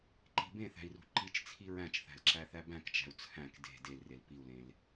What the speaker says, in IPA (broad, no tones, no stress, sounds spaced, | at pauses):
ǃ i̤ b ẽ θ æ̤ i̯ r ṳ ǃ i t͡ʃ t͡sʰ i ɹ æ̃ t͡ʃ θ æ̤ l ǁ æ θ æ b æ̃ k t͡ʃ æ̤ u̯ t͡sʰ æ̃ k d e̤ d e l r e l p i u̯ l ẽ l